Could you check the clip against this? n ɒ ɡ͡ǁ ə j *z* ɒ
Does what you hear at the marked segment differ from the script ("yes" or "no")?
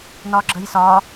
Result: yes